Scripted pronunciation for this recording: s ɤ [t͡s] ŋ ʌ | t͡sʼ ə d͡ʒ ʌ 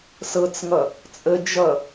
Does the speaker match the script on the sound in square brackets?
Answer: yes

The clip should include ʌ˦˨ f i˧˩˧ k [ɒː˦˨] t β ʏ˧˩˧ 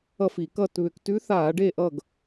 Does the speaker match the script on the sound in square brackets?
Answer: no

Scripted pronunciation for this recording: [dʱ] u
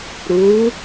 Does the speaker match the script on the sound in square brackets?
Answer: no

